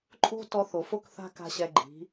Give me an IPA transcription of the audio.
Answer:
ǃʼ o̤˦ t ɔ˧ θ o˨ f o˦ k θ a̤˦ k a̤˦ ɕ ɛ˧ ɡ͡ǃ i̤˨˦

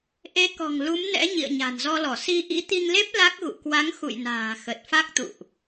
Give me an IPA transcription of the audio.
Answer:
ʔ e˨˦ k ɔ̤˨˩ ŋ l u˨˦ m n ɛ̰˧˥ ɲ ḭ˧˨ ə̯ ɲ a̤˨˩ n z ɔ˧ l ɔ˧˩ s i˧ ʔ ḭ˧˥ t̪ i˧ ŋ l e˦˥ p̚ l a˦˥ k̚ ɣ ṵ˧˨ k w a˨˦ ŋ x ṵ˧˨ j n a̤ː˨˩ x ə˨˩ t̚ f a˦˥ k̚ t̪ ṵ˧˨ ʔ

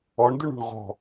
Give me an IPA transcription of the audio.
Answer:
ɔ ɳ d ʏ ɳ ṳ ɳ ʁ ɔ̤

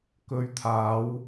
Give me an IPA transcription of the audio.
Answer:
k ɵ˨˧ ɥ t̪ʰ aː˨˧ w

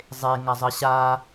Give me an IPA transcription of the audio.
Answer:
zˤ e ŋ a zˤ ə ɕ a

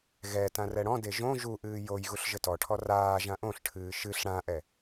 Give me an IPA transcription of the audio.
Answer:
ɣ ɛ t ã r ɛ ɽ ɔ̃ d e ʒ õ ʒ u ʔ ɨː j o j ɣ u ɬ ʒ ɘ t ɔ ʈʰ ɔ r aː ʒ ã ʔ õ ɬ ʈʰ ɨː ʃ ɨ ɬ ɽ ã ʔ ɛ

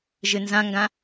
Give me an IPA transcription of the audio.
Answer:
ʒ ɨ n z ã ŋ ɡ ã

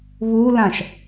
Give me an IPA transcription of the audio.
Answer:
β u l ã ʃ

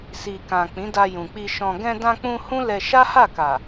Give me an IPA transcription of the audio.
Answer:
s i˨ k ã˨ k͡p ĩ˨˦ d a˧ j ũ˨ k͡p i˧ ʃ ɔ̃˧ ɡ ɛ̃˧ d ã˧ k͡p ũ˧ h ũ˦ l ɛ˧ ʃ a˦ h a˦˨ k a˨

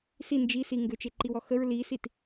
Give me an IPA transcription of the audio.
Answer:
s i n d͡ʒ i s i ŋ ɡ ʏ t͡ʃ e ǃ i w ɔ x ə ɹ l i s i t

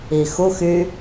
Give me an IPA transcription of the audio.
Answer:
i x u x y

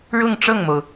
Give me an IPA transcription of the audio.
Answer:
ɻ ʊ˥˧ ŋ ʈ͡ʂ ɤ˥˩ ŋ m o˩ ʊ̯

